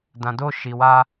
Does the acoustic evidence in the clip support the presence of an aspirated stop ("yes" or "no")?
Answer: no